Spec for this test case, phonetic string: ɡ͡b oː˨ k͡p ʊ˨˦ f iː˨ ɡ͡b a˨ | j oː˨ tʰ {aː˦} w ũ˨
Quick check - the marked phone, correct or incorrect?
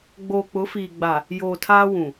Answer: correct